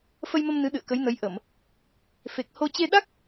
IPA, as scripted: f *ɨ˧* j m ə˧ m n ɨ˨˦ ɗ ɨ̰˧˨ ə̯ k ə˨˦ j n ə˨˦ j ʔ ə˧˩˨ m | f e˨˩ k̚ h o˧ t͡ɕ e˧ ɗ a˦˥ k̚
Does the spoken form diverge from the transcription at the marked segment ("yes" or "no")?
yes